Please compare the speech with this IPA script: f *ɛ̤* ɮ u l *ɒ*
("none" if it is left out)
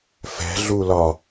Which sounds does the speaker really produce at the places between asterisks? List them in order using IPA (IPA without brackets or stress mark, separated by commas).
ɛ̤, ɒ